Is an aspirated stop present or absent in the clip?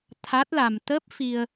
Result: present